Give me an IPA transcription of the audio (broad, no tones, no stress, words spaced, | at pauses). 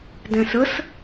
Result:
dɛ̃səs